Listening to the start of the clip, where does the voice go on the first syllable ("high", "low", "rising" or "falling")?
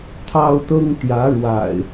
high